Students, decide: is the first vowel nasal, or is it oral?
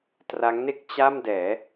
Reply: oral